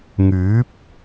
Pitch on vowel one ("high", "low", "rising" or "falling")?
rising